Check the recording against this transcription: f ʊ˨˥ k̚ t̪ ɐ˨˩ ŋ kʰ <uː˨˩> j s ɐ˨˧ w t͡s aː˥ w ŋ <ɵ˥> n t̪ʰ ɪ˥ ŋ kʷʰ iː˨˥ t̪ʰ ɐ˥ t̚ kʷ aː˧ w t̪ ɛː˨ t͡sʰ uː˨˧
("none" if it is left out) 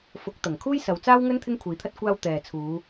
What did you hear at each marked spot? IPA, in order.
uː˥, ɵ˥

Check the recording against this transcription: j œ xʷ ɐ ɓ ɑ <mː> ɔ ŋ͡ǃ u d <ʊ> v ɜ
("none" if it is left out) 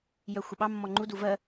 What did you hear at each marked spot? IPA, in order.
mː, u

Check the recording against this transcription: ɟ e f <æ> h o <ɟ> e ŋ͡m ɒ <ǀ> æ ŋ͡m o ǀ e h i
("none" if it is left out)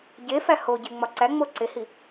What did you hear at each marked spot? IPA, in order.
æ, ɟ, ǀ

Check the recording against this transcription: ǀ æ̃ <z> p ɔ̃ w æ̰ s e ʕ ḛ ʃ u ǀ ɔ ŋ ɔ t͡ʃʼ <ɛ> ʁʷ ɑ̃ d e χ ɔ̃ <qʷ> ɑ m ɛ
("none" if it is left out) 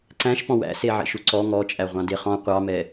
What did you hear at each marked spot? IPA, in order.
ʃ, æ, qʷ

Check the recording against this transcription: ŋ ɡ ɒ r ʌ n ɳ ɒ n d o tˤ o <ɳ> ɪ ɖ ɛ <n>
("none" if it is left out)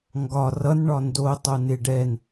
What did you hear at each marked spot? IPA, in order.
n, n

